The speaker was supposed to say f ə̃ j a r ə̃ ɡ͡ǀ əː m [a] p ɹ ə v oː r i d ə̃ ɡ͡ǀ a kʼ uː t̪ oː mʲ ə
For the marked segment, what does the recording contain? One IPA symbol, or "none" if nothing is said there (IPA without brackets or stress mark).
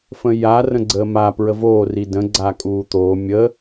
a